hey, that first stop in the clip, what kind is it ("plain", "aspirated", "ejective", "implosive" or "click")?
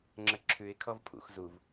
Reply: click